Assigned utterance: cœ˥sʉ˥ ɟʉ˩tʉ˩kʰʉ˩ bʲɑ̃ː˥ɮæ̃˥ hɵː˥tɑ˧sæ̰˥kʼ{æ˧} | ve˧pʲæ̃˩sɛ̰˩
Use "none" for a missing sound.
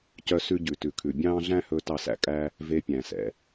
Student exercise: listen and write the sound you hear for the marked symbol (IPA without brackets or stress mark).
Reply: æ˥